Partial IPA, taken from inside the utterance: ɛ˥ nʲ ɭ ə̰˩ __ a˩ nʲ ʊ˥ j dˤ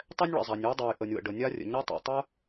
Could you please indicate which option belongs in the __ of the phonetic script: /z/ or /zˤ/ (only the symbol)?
zˤ